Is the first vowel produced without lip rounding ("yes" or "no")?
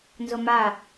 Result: no